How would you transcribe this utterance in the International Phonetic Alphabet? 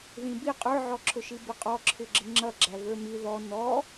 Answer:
ð ĩ b i qʼ ə˞ ʕ ɔ ǁʰ ʊ ʃ i b ɪ qʼ ɔ ǁʰ ɪ ɡ͡ǁ ɪ ŋ͡ǁ ʌ ɡ͡ǁ æ v ə˞ m i ð ɔ n ɔ

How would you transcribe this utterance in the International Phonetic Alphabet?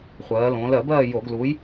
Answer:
χʷ ɜː˩˧ l õː˩˧ l ɜ˧˩˧ b ɜː˦˨ j o˧˩˧ ɡ l uː˨˥ j

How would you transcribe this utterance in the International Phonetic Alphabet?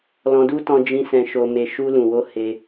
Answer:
l ɔ̃˧ d u˦ t ɔ̃˧ d͡ʒ ĩ˧ s ɛ̃˧ ʃ o˧ m e˧ ʃ u˧ l ũ˨ w o˧ h e˧

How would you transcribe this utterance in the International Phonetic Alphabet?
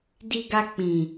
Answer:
d i˧ ɡ a˧ k͡p ĩ˨

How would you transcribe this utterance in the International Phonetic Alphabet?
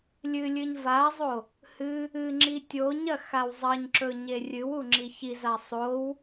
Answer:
lʲ ɨ lʲ ɨ ɲ v a zˤ o | h ɨ | ɨ ŋ͡ǁ i tʲ o ɲ ɐ x a w zˤ ɐ ɲ ǁ ɵ ɲ e rʲ ɨ w u ŋ͡ǁ i ç i z a sˤ o w

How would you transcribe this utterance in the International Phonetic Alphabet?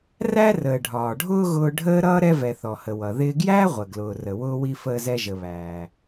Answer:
r æ˥ r əː˩ ɖʱ ɒː˩ ɖʱ ʊː˥ ɣ ʊː˧ ɖʱ əː˥ ɾ ʌː˥ ɾ ɛ˧ v ɛ˩ θ ɔ˩ h ə˩ w ʌ˩ ð ɪː˧ ɡ j æː˥ ʁʷ ə˩ ɡ l ʊː˩ r ə˩ w ʊː˧ w i˧ f əː˧ z ɛ˧ ʒ ə˩ β æː˩

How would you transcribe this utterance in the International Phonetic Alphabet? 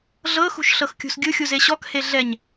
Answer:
ɮ ɤ x ṳ ʃ ɬ ɤ x kʲ ṳ s ɡʲ ɯ xʲ u z e ɕ ɔ k h e ɮ ɛ ɲ

